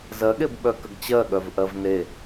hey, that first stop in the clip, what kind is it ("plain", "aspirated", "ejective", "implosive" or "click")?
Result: implosive